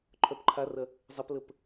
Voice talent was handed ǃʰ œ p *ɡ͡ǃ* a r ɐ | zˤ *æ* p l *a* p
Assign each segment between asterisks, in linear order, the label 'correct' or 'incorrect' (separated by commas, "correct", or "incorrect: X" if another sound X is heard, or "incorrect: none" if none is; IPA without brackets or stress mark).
incorrect: ǃʰ, incorrect: ɐ, incorrect: ə